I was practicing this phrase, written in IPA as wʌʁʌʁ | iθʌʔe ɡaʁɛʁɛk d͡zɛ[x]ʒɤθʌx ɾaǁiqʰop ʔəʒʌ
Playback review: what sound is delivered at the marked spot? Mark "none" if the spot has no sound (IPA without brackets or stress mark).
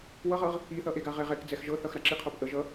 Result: x